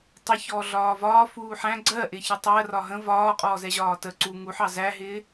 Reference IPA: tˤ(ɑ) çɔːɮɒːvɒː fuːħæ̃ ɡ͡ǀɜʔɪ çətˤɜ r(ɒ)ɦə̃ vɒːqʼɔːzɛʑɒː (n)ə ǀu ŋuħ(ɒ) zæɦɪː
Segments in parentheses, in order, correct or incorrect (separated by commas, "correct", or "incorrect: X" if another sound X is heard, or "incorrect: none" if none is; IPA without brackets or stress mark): incorrect: ə, correct, incorrect: t, incorrect: ɑ